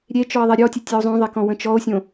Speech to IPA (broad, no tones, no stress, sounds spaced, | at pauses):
ɾʲ e t͡ʃ ɔ e̯ ðˤ e ɾʲ ɔ tʲ ə tʲ e o̯ zˤ õ ðˤ e k ɔ̃ w ə̃ t͡ʃ ɔ o̯ sʲ õ